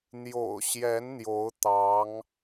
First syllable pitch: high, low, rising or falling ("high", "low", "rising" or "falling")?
low